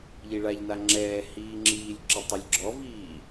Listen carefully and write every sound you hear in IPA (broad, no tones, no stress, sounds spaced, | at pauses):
ʎ i ɭ a ʎ n a ŋ͡ǁ ɛː h iː ŋ͡ǁ iː lʲ ǁ i tˤ ɛ lʲ ɡ͡ǁ ɔ v iː